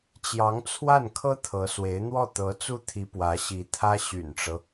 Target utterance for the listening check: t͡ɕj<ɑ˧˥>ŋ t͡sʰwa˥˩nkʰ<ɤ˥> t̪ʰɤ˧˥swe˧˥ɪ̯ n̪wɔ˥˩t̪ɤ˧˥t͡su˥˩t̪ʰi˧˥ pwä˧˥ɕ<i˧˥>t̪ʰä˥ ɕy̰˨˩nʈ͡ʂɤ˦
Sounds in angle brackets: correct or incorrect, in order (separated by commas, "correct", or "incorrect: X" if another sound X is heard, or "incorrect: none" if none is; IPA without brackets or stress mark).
correct, correct, correct